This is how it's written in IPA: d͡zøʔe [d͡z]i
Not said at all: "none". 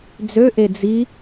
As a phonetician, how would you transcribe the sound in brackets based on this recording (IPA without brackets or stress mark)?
d͡z